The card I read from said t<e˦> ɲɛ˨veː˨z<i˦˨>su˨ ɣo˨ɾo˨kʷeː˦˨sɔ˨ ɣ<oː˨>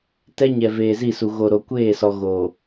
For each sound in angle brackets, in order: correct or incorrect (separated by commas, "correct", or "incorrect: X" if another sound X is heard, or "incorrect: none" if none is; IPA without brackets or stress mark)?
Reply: incorrect: ɛ˦, correct, correct